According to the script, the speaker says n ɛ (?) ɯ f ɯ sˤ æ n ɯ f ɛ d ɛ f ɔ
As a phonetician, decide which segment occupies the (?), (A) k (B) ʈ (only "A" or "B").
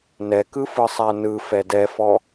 A